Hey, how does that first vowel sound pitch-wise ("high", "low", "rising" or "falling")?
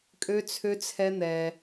high